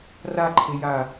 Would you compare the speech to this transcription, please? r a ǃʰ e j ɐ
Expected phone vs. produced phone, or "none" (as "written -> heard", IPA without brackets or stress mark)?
ɐ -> a